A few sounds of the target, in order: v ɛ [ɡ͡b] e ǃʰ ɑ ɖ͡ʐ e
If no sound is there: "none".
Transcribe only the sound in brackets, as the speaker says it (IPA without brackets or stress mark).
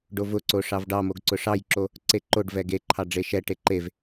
ɡ